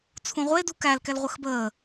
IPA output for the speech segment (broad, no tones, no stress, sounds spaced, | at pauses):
t͡sʰ ũ ʁʷ e d u k æ l k ɛ l ʁʷ ə x b əː